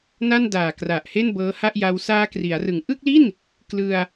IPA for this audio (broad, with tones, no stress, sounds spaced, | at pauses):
n a˥˩ n d aː˨˩ k r a˨˩ ʔ h e˥˩ n b ɤː˦˥ h a˥˩ ʔ j a˧ w s aː˧ k r i˩˦ a̯ r ɯ˨˩ ŋ ʔ ɯ˥˩ k̚ l i˥˩ n | k l ɯ˧ a̯